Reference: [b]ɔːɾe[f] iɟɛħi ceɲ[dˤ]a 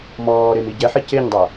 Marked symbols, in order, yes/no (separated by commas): no, no, yes